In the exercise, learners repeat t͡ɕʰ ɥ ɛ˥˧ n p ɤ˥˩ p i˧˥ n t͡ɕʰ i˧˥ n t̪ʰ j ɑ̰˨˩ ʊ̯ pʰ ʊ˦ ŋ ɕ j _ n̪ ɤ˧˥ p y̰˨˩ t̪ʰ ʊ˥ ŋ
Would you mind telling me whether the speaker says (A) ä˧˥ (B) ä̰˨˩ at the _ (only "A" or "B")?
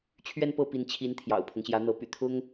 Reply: A